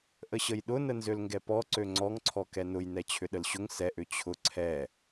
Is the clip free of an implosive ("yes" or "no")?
no